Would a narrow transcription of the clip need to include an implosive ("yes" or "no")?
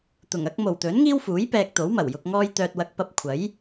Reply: no